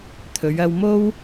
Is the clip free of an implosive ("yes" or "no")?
yes